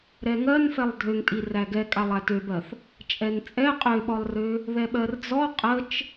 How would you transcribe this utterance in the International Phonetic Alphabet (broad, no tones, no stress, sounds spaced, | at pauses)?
ɾ ɛ ŋ ɜ n f ɛ lˠ dʱ ø ŋ tʼ i r æ ɡ ɛ kʼ a lˠ æ t ø b ɜ θ | t͡ʃʼ ɛ n t͡sʼ ɛ qʼ ø ɓ ɔ lˠ r ø | ð ɛ ɓ ɜ r d͡z ɔ qʼ ə t͡ʃ